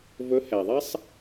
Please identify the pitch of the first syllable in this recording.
rising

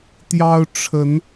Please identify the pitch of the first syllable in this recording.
high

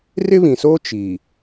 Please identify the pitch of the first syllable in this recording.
high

